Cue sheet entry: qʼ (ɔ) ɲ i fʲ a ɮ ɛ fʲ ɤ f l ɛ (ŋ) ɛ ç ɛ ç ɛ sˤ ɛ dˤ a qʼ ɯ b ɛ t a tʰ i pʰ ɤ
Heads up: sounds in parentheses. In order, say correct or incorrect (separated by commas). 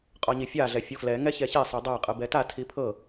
correct, correct